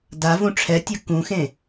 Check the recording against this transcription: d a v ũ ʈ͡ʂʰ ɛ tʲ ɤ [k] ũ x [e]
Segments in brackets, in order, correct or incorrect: correct, incorrect

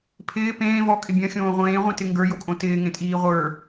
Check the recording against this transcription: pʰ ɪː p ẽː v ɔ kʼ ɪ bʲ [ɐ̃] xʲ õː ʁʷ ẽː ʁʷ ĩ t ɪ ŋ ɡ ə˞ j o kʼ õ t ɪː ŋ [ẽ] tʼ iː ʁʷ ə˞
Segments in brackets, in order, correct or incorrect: correct, correct

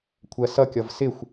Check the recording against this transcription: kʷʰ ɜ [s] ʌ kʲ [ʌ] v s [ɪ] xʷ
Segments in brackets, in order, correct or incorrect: correct, correct, correct

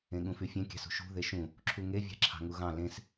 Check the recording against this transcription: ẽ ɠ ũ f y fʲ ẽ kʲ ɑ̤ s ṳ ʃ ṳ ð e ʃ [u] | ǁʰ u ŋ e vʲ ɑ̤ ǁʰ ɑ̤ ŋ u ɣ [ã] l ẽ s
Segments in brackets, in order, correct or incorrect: incorrect, incorrect

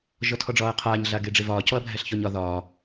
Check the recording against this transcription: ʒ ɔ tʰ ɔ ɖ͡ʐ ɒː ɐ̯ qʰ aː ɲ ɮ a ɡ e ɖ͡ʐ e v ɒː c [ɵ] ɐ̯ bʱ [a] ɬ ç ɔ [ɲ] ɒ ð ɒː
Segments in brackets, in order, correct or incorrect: incorrect, incorrect, correct

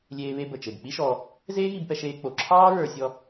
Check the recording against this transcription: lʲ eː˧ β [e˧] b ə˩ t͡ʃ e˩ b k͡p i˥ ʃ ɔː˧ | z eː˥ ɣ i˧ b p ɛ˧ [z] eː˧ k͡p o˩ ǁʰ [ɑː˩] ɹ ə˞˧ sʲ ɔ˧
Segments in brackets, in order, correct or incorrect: correct, incorrect, incorrect

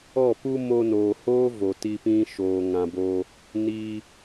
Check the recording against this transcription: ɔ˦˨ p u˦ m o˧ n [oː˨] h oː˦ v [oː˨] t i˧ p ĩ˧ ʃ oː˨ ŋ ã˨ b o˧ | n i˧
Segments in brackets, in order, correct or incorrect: correct, incorrect

